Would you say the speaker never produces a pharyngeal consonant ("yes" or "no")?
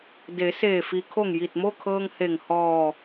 yes